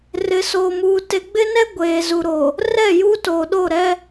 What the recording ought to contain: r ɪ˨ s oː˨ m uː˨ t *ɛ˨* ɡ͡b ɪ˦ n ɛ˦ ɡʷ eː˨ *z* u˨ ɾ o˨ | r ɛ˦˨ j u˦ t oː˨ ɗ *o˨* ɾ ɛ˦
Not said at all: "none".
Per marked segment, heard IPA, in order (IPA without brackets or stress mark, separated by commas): e˨, z, o˦˨